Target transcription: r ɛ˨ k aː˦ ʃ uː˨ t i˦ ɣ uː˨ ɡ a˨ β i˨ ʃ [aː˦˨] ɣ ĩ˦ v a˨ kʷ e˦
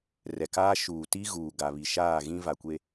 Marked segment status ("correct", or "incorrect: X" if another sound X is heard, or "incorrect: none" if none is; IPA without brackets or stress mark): correct